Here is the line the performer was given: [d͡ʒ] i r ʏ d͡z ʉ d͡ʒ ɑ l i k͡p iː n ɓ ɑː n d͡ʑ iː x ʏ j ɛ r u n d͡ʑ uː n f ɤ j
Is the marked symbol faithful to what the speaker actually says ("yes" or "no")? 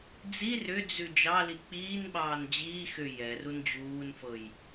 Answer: no